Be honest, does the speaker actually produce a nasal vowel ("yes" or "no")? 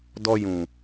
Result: yes